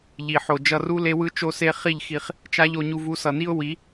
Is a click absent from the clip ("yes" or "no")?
yes